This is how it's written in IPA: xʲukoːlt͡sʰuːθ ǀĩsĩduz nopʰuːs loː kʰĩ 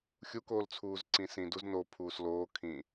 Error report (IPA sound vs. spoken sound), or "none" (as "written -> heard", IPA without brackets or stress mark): θ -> z